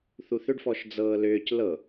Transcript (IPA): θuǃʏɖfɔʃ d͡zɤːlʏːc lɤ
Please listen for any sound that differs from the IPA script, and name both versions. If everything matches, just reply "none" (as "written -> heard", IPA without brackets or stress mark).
ǃ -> θ